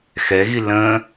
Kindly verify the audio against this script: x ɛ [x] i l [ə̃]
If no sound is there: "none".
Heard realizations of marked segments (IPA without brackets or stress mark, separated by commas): ɣ, ə̃